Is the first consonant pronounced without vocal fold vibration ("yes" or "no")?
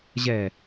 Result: no